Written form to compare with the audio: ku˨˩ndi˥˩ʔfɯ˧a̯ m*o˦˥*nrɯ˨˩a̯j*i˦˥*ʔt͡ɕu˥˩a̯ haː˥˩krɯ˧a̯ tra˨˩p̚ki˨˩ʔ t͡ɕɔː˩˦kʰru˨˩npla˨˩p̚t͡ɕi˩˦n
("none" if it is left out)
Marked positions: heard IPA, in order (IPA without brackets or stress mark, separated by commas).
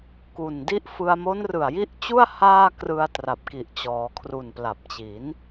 o˦˥, i˦˥